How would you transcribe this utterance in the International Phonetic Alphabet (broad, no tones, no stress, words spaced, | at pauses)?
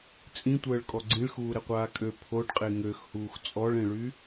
t͡sʼĩtʷəːɭkʼɔ ɡ͡ǀĩɭxuːɾɛqʷaː kʼø pʰoɖqʼe ŋøxhuːx t͡sʼɔɭẽɭy